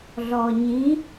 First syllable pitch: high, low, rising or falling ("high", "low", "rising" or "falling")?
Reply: low